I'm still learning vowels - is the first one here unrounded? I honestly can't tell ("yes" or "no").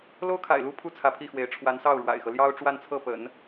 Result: no